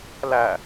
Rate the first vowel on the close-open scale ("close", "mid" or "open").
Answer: open